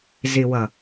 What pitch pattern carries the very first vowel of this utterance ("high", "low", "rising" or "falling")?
low